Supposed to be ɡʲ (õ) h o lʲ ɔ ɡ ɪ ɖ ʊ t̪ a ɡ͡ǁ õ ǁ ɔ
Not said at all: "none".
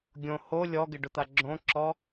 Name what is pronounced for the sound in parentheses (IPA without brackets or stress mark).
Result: õ